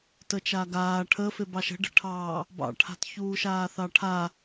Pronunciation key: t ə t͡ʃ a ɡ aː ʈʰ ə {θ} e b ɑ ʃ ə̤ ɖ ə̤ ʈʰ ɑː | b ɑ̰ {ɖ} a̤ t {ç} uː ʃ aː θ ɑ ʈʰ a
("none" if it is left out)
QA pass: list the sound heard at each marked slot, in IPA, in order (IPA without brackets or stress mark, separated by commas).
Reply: f, ʈʰ, ç